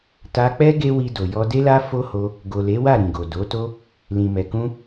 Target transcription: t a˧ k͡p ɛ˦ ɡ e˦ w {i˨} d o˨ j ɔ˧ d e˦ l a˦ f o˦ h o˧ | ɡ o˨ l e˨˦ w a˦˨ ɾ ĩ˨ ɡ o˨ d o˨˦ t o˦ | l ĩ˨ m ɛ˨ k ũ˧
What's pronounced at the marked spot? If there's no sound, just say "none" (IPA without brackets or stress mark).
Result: i˧